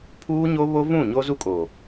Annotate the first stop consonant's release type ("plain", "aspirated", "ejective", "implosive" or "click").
aspirated